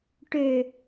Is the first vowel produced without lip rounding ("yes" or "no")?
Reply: no